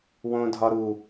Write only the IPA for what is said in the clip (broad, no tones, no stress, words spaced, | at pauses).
wõdʱɒɾu